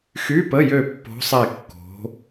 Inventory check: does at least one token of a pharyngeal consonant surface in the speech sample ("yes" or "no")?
no